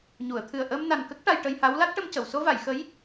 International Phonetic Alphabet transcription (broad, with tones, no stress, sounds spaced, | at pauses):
ɲ u˨˩˨ ə̯ t̪ʰ ɨ˨˩ ə̯ ʔ əː˧ m n a˨˩ n k ə˦˥ k̚ ʈ a˧ j ʈ ə˧ j h a˧˥ w l a˦˥ t̚ ʈ ə˧ m c ə˨˩˨ w s o˧ v a˨˩˨ j x ə˧˥ j